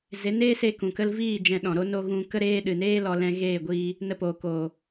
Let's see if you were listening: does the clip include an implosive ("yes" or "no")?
yes